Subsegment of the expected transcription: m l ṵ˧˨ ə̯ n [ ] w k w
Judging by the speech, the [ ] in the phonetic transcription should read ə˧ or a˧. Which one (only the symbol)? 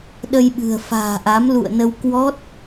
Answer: ə˧